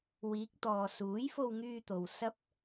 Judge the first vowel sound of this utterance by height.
high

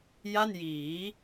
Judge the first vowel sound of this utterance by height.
low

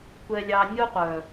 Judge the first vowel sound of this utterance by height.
mid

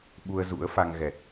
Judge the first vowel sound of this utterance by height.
high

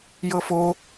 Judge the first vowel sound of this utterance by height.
mid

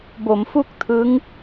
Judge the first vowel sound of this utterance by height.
mid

